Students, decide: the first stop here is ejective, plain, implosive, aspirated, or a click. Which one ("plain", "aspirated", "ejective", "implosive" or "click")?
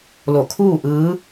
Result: aspirated